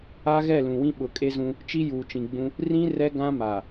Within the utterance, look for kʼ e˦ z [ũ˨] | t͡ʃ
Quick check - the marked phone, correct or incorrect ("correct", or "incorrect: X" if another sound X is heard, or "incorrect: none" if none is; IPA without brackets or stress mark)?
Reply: incorrect: ũ˦